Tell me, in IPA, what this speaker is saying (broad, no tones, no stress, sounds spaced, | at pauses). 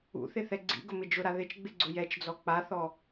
ṵ θ ɪ θ ɛ ɡ͡ǀ ḭ ɡ ʊ m ɪ d͡ʒ ʊ ɾ a ð ɪ t͡ʃ ɡ͡b ɪ ɡ͡ǀ ʊ j ɛ t͡ʃ d͡z ɔ k͡p a θ ɔ